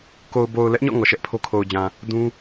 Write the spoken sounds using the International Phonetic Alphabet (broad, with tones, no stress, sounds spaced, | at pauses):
k o˨ ʊ̯ b o˨ ʊ̯ l ɛ˦ ʔ ɲ ɔ̰˦˨ ŋ ɔ˨ ʃ ɛ˦ ʔ pʰ o˦ kʰ o˨ ʊ̯ d͡ʑ ã˨ | d ũ˦